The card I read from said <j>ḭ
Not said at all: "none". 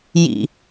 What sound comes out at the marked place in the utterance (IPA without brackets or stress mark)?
j